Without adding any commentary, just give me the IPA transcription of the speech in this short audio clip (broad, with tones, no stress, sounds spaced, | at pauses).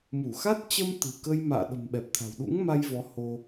m u˧˩ x a˦˥ t̚ t͡ɕ ə˧ m t̪ ɨ̤˨˩ k ə˧ j m a̰ː˧˨ ɗ ə̤˨˩ m ɓ ɛ˨˩ p̚ t̪ʰ a̤˨˩ w ɗ ṵ˧˥ ŋ m a˧ j v ɔ˨˦ h o˧